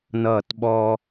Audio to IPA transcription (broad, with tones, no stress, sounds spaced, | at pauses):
n ʌː˧˩ t ɓ ɔ˧